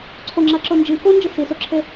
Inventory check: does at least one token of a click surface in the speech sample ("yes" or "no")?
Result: yes